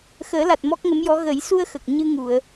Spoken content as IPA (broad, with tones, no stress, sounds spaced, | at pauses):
x əː˨˩˦ l a˨˩ t̚ m ɔ˦˥ k̚ ŋ ə˧˥ m j ɔ˧˥ ɣ ə˨˩˦ j s u˧ ə̯ x ə˨˩ k̚ ɲ ɨ˧ ŋ u˨˩˨ ə̯